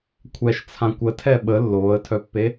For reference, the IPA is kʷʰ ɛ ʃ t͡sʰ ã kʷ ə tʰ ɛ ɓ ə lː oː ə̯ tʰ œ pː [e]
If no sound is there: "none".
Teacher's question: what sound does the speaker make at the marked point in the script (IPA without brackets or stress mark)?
e